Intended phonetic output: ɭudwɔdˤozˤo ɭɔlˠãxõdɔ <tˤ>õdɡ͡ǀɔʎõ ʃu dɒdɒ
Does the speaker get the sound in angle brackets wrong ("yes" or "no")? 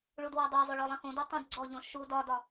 no